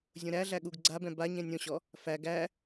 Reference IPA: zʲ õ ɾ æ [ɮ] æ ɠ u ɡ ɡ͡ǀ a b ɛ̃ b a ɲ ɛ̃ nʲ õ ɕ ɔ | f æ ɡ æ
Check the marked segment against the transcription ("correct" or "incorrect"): correct